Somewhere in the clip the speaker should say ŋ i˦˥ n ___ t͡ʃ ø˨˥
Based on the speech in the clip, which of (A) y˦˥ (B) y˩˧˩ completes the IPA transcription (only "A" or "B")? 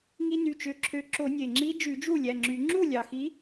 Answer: B